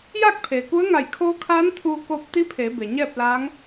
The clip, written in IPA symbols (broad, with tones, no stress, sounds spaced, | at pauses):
j aː˥˨ k̚ pʰ eː˩ k u˧˥ ə̯ ŋ a˧˩ j kʰ oː˧˥ kʰ aː˧˥ n t̪ʰ uː˧ k oː˧ p̚ t̪ i˧˥ pʰ eː˩˧ b e˩ ɲ ɛː˥˨ p̚ l aː˧˥ ŋ